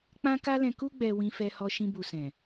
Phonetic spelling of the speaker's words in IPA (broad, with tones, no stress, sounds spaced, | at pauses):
k͡p ã˦ k a˦ l ɛ̃˧ k u˧ ɡ͡b ɛ˨ w ĩ˧ f ɛ˧ h ɔ˧ ʃ ĩ˧ b u˨ s ɛ̃˨